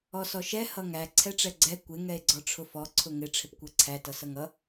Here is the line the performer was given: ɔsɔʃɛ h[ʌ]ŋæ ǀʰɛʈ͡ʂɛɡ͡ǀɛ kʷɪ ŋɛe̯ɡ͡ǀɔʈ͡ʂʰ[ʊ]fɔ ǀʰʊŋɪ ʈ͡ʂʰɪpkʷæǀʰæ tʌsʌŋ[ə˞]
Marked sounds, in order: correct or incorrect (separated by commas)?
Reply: correct, correct, incorrect